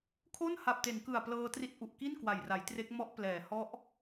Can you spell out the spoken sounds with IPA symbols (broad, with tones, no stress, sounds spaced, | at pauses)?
kʰ o˥˩ n h a˨˩ p̚ t e˩˦ n k ɯ˨˩ a̯ p l ɤː˧ t r i˦˥ t̚ ʔ u˨˩ ʔ k i˥˩ n k w a˨˩ j r a˩˦ j t r e˦˥ k̚ m ɔ˦˥ ʔ p l ɛː˩˦ h ɔ˦˥ ʔ